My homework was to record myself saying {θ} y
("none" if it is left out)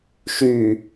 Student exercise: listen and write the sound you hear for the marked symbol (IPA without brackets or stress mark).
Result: ʃ